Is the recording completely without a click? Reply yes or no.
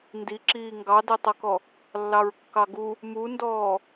no